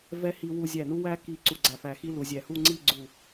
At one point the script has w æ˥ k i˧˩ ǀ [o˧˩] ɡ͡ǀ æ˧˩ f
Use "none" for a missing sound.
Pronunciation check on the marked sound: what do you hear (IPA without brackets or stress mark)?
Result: u˧˩